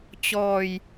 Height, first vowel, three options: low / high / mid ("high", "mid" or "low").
mid